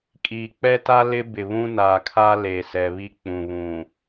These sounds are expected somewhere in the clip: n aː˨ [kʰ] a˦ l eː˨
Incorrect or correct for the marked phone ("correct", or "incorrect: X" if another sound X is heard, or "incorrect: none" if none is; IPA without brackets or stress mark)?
correct